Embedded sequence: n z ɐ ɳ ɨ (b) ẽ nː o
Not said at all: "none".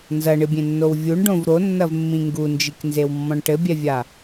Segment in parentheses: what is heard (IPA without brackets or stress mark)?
bʲ